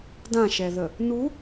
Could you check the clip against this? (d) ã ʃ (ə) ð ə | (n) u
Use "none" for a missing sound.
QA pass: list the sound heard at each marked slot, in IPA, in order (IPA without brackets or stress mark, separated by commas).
d, ɛ, n